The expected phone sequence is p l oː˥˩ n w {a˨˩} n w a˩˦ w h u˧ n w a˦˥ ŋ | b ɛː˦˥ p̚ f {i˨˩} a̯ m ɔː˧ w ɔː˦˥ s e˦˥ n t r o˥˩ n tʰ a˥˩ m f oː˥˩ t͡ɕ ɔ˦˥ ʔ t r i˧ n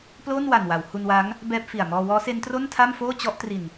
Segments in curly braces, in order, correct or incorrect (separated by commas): correct, correct